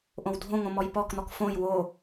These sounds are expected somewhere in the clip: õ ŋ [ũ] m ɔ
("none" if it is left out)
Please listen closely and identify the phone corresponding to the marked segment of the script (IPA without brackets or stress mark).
õ